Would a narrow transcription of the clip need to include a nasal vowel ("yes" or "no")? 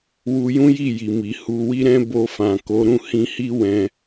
yes